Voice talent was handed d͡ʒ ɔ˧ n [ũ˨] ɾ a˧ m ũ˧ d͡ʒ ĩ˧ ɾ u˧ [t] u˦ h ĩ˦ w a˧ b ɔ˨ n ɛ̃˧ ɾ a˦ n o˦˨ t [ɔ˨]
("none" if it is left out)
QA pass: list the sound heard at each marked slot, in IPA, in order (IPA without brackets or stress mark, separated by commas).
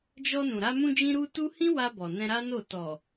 ũ˨, t, ɔ˨